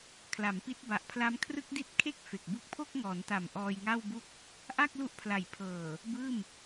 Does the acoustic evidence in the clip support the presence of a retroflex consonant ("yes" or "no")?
no